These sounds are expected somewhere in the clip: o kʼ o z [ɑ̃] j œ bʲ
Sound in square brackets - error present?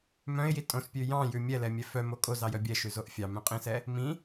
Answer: yes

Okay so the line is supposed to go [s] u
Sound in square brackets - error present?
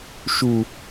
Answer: yes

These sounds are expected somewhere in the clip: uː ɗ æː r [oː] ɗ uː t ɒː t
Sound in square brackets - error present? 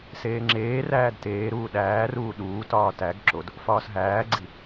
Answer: yes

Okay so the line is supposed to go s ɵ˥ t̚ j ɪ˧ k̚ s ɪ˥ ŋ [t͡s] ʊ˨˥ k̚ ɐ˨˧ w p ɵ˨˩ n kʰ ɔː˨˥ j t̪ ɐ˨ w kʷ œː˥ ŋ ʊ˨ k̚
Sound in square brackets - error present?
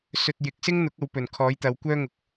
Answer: yes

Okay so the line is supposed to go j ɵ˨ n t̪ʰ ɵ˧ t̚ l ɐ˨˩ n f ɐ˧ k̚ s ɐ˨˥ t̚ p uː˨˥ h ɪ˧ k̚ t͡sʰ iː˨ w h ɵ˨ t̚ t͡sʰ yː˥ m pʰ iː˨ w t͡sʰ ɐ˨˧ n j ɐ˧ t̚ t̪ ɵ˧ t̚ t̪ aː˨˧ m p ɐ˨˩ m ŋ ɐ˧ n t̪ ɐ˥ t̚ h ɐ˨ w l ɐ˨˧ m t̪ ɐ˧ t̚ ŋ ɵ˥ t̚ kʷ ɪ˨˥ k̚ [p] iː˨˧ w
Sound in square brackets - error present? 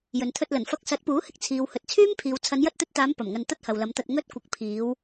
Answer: yes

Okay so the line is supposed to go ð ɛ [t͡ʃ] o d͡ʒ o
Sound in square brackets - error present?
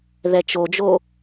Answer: no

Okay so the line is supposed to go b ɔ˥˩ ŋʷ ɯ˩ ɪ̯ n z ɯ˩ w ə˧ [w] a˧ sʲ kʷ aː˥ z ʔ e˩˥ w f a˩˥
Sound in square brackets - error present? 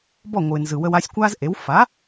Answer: no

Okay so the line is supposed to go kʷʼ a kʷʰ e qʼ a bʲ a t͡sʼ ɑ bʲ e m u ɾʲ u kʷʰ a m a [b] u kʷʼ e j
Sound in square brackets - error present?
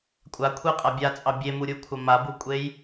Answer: no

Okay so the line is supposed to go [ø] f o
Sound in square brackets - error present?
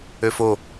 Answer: no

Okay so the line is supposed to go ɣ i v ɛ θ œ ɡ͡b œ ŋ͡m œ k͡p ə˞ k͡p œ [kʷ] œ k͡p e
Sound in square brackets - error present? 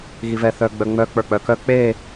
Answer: yes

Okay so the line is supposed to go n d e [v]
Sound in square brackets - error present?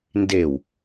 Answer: yes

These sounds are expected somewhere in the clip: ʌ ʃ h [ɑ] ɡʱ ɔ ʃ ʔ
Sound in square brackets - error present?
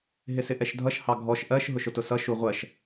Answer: no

